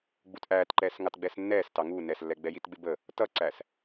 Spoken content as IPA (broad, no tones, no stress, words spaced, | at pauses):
ɡ͡butʔæːtǃɛːs ŋɑtɡ͡bɛsnːɛːstɑ ŋu nɛslːɛɡ͡bɛjit ɡ͡bɪbə | tʌǀæs